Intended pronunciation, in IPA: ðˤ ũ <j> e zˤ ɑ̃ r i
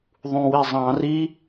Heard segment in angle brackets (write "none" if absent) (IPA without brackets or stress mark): w